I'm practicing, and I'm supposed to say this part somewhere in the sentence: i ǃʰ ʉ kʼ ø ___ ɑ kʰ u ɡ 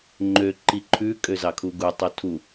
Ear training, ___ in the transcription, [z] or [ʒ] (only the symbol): z